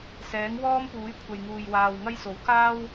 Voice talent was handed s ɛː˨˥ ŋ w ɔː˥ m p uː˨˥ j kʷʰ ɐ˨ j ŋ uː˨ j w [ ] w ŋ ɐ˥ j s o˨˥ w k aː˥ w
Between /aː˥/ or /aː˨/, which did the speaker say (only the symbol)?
aː˨